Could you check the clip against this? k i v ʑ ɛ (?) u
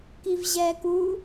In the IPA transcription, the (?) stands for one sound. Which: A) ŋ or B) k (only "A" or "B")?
B